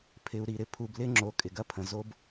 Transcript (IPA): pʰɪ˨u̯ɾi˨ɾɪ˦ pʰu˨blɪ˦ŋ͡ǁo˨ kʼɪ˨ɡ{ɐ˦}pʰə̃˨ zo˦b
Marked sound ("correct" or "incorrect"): correct